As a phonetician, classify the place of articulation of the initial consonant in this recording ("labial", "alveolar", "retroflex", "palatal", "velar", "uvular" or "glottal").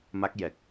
labial